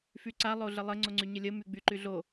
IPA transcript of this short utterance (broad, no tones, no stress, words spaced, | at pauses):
fyǀa lˠoɮəlˠə ŋ͡ǀoŋ͡ǀyɲəlʲə myɡ͡byǃyɮo